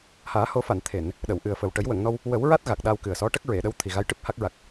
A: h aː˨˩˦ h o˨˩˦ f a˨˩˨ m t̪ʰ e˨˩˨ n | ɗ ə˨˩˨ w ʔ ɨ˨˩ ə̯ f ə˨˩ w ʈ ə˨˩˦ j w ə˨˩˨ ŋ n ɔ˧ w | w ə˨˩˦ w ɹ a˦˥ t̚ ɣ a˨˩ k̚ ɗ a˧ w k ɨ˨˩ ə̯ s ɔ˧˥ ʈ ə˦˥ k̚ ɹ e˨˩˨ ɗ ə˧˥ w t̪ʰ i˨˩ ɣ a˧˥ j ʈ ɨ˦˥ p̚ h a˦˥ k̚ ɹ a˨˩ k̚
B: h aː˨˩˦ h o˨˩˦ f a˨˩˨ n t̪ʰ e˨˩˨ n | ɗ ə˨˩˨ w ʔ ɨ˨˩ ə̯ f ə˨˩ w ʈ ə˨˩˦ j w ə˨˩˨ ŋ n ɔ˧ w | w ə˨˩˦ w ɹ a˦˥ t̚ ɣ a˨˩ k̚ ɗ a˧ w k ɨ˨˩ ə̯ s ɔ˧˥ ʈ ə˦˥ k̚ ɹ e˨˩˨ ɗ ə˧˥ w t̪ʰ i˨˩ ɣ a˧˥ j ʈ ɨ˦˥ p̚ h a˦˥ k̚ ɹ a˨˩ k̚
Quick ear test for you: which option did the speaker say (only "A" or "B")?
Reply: B